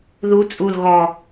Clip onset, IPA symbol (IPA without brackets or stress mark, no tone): ð